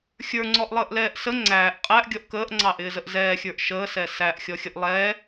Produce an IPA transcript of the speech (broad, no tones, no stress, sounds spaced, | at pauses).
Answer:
xʲ ə˞ ŋ͡ǀ ɔ ʔ lˠ əː ʔ l ɛː ʔ s ə ŋ͡ǀ æː ʔ qʼ æ ʔ ɡʲ ɔ ʔ k əː ʔ ŋ͡ǀ ɑ ʔ ɪː z ə ʔ z ɛː xʲ ə˞ ʔ ʃ əː s ɛ s æ ʔ xʲ ɔ xʲ ə ʔ lˠ ɛ